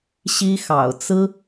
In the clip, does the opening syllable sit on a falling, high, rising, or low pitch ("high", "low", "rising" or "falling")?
high